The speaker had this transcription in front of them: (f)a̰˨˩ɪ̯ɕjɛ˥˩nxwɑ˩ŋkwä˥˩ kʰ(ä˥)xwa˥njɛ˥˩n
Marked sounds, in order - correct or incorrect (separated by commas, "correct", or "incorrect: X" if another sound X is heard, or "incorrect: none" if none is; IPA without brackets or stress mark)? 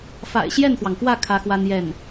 correct, correct